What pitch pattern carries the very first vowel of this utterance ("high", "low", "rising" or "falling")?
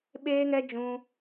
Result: high